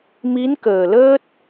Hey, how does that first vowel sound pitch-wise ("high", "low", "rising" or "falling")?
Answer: rising